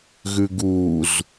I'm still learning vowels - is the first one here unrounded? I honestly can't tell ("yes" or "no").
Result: no